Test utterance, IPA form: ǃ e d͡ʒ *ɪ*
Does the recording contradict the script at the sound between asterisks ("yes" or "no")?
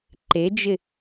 no